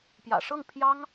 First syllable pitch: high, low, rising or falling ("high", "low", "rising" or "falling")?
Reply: low